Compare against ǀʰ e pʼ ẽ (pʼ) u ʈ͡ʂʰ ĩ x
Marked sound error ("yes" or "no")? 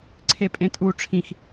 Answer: yes